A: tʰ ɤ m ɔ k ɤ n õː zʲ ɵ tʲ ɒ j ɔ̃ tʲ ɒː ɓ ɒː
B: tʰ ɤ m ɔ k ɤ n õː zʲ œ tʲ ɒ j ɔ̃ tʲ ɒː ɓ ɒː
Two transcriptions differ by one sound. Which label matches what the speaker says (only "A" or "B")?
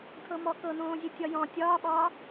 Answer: A